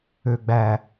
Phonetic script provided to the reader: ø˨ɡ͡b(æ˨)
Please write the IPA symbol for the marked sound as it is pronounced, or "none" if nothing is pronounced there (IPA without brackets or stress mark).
æ˨